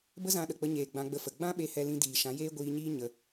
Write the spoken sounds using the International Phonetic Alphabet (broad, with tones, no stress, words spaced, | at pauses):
bə˦zã˧ɗə˨k͡pə˧ ɲeː˨ ɡ͡bã˧ɡ͡bə˧fə˨ ɡ͡bã˦ɓe˧ hɛ˧lĩ˧ diː˨ ʃã˨˦jeː˦ ɡʷiː˧ɲiː˦ ɲə˧